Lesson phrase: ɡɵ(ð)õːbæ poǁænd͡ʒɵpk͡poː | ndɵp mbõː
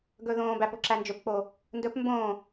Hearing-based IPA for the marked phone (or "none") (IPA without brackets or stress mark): ð